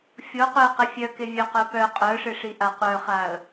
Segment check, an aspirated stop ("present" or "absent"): absent